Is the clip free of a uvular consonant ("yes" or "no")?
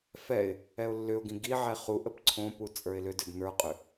no